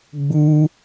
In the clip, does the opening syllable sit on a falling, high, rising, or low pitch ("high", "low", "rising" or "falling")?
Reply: high